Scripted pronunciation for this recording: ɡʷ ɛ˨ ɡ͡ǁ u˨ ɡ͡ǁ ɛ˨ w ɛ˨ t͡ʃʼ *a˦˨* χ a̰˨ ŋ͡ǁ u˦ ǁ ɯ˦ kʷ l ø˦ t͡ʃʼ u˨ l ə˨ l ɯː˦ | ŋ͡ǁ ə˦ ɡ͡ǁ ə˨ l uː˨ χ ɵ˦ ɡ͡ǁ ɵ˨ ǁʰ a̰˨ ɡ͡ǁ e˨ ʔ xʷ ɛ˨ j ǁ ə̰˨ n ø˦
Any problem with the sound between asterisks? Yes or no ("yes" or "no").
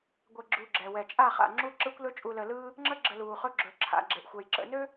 no